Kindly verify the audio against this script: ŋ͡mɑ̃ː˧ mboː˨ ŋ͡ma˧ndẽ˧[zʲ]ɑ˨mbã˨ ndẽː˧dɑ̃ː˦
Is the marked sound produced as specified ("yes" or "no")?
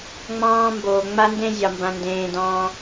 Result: yes